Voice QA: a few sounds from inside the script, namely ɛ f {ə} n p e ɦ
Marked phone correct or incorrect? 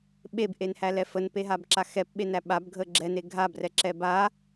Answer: correct